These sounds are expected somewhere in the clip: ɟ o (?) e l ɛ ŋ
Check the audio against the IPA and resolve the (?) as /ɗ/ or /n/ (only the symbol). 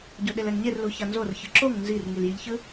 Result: ɗ